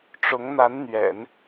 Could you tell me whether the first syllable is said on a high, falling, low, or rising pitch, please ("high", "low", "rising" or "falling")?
rising